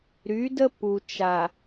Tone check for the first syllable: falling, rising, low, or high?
rising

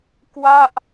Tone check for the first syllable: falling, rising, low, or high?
falling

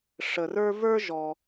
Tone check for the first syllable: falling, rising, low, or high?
low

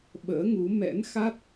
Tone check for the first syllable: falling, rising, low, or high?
rising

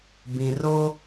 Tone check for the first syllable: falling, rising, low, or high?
low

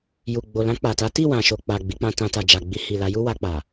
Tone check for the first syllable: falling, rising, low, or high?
low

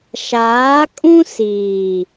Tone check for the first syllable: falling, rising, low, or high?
rising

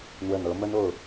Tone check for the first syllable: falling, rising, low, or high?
low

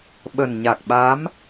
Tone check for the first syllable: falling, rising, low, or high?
low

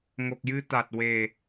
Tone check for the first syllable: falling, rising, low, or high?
low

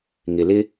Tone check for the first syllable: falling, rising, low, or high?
low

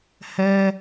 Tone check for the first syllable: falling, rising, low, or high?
high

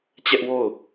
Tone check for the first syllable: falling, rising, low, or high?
high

